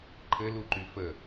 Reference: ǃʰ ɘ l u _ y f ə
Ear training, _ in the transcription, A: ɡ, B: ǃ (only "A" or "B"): B